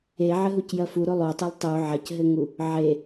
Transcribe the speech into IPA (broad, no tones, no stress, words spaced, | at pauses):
eʕɘɦucjɐ fuɾo lˠotˤolˠ tˤu ʕɐcɦɘŋu | ʕe